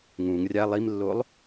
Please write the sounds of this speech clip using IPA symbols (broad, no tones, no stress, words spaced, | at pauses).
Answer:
ŋũŋ rʲa lˠimlːolˠ